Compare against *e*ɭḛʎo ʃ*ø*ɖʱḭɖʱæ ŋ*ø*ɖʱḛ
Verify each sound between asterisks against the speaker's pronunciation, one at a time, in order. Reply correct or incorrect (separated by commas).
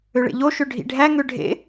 incorrect, correct, correct